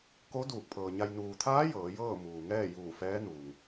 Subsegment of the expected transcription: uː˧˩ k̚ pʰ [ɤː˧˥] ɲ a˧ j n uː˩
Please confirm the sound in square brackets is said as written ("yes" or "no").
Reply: no